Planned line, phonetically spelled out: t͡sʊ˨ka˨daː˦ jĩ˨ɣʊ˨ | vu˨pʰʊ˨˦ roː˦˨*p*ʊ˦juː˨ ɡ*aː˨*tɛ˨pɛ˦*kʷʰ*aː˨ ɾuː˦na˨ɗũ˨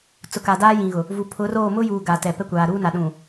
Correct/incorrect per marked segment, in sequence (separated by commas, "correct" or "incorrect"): incorrect, incorrect, incorrect